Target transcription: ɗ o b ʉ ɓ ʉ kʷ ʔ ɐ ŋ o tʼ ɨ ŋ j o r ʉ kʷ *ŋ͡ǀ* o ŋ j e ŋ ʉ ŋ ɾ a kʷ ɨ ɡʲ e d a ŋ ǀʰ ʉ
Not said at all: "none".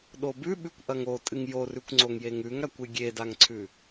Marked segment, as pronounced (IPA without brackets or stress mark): ŋ͡ǀ